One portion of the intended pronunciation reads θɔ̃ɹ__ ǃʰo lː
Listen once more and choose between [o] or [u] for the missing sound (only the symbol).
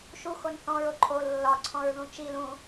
o